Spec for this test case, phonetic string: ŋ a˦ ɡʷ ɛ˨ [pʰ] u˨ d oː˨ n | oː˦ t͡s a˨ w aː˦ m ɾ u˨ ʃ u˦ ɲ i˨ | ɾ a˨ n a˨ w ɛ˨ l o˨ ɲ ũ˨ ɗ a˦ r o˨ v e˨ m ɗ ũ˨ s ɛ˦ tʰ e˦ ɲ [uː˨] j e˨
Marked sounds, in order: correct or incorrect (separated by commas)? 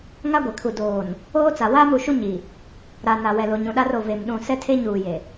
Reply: incorrect, correct